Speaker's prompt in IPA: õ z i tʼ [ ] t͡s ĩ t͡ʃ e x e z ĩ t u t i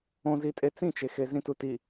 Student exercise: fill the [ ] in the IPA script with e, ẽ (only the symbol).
e